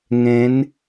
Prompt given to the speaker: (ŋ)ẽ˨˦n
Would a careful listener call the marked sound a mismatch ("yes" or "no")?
no